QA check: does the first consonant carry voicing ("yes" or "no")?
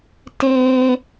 no